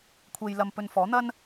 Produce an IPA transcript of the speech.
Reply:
kʷʰ e˧ j l ɐ˧ m p ɵ˧ n f ɔː˨˥ n̪ ɐ˥ n

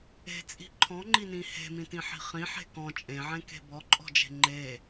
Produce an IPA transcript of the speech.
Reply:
e̤ t͡sʼ i̤ ǃʰ ɔ̃ ŋ͡ǃ i n ĩ h e̤ m ĩ t ĩ ħ i̤ χ ĩ ħ e̤ k ɔ̃ t͡ʃʼ ẽ ʕ ẽ k e̤ b ɔ ǃʼ ɔ̤ d͡ʒ e̤ ŋ͡ǃ e

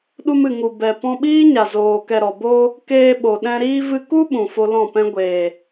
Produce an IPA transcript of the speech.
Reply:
ɗ u˧ m ɨ˨ ŋ u˨ b ɛ˨ p ɔ̃˧ ɓ iː˦ ɲ a˨ z oː˨ k ɛ˨ ɾ ɔ˨ b oː˧ | k eː˧ ɓ o˨ ɗ ɛ̃˧ ɾ iː˧ v ɨ˧ k u˦ ɓ ũ˨ f o˧ l ɔ̃˦˨ p ɛ̃˦ ɡʷ eː˨

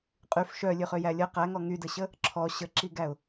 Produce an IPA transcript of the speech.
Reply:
qʼ y f ʃ œ lʲ ø χ ø j æ lʲ ə q æ ŋ ɔ ŋ y d ə ɕ ə | ǁʰ ɔ ɕ ə ǁ i ɡ æ ʊ̯

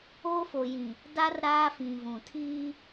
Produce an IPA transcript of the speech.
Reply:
oː˦ f o˨ j ĩ˨ | d a˦ r ɾ aː˦ f ĩ˨ v ũ˨ tʰ iː˦

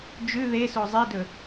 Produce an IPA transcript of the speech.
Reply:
d͡ʒ ʉ ð e s o zˤ e d ɵ

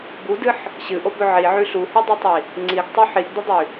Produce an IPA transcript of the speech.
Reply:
b u d ɨ ħ | ɕ ɨ ʔ o b ɵ ʕ i ʕ ʉ ɬ u h i dˤ ɨ tˤ i | ŋ͡ǀ i ɡ tˤ u ħ i ɡ d ɨ dˤ ʉ

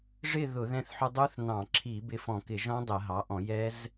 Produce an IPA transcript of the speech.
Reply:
ʐ ɪ˥˨ ð ʊ˧˩˧ ð ɛ̃˧ θ ħ u˧ dˤ u˦˥ θ n ɑ̃˧˩˧ ǁʰ i˧˩˧ b ɪ˧ f ɔ̃˧˩˧ k ɪ˧˩˧ ʒ ɔ̃˦˥ dˤ ɛ˧˩˧ ɦ ɑ˩˥ ʔ ɔ̃˧˩˧ j ɛ˦˥ z

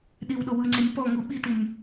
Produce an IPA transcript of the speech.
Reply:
ɗ i w ɗ o w ɯ ŋ͡ǀ e nʲ p ɔ ŋ u ɓ i t i nʲ

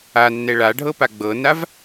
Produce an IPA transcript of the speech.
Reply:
a nː ɛ ɭ a ɖʱ ɤ p a ɡ͡b ɤ n a v

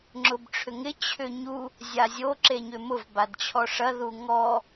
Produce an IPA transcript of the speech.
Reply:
ŋ͡ǁ ʊ b ʈ͡ʂʰ ʏ ŋ ɪ t͡ɕʰ ʏ ɲ u | zʲ a zʲ o ǁ e ɲ ʏ m ʊ v b a d t͡ɕʰ ɔ ʂ ɐ ð u ŋ ɔ

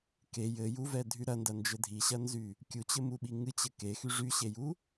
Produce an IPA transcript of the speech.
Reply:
k e j ɘ j u v ɛ dʱ y ɾ ɐ n d ɐ n d͡ʒ ɘ dʱ i ɕ ɐ n z y | kʲ u t͡ɕ ɘ m u ɓ i ŋ ɨ t͡ɕ ɘ k e x y ʐ y ɕ e j u

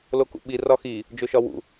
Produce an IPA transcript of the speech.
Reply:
l o k ṵ ɓ i r ɒ x i | d͡ʒ o ʃ ɒ w ṵ

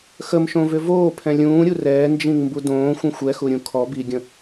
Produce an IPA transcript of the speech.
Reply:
x ə m ʃ õ v ʏ v oː pʰ ɛ̃ lʲ ũː ɾʲ u r ɛː n d͡ʒ ĩ ŋ m b u d õː xʷ ə̃ xʷ ɛ x u ɾʲ ũ kʰ ɔ b i ɡʲ ə̃

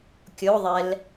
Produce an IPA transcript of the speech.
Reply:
kʲ o ðˤ ɛ l

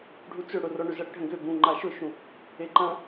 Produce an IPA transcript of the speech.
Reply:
ɖʱ u t͡s ʏ ɽ ʊ r ɔ ɳ ø z ɐ ɽ ɪ ɖʱ ə̃ ɡ ʏ b ũ ŋ͡ǃ a ʃ ʊ ʃ ũ | e ǃ ɐ̃

